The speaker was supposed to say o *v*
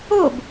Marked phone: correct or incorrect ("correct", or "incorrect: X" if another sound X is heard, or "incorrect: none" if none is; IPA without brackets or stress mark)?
incorrect: b